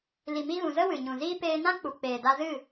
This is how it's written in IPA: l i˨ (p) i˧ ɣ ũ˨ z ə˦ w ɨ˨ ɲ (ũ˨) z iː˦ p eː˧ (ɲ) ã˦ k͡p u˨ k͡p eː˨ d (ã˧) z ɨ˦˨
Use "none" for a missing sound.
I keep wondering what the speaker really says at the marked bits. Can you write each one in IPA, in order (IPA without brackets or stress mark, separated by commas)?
m, ũ˨, n, a˧